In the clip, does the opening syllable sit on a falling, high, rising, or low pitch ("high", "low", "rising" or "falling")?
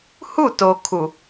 falling